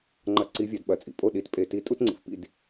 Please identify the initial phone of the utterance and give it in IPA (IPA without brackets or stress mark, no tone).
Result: ŋ͡ǃ